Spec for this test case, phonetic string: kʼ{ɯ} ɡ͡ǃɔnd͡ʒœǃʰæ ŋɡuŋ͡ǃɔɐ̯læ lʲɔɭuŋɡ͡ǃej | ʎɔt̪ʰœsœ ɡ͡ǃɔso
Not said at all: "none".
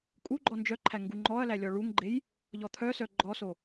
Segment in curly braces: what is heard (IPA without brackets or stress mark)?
u